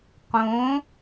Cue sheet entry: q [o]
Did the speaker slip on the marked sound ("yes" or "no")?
yes